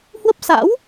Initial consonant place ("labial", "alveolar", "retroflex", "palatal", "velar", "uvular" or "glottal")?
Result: glottal